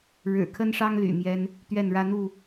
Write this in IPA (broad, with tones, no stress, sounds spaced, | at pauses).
ɻ ɻ̩˨˩ kʰ ə˦ n ʂ ɑ˦ ŋ l y̰˨˩ m j ɛ˦ n | t̪ ɥ ɛ˥˨ n ɻ ä˦ n̪ u˥˨